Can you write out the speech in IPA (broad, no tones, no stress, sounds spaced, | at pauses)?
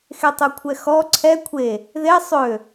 x e tˤ u kʷʰ ɛ x ɔ ǀʰ ɛ kʷʰ e | ð e sˤ ø